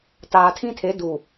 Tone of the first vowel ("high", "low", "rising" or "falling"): low